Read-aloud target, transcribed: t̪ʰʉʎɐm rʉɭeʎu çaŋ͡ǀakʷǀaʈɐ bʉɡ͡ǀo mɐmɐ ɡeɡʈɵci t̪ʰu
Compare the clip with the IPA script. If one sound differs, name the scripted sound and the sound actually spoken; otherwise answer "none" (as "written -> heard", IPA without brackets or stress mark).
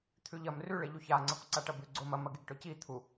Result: none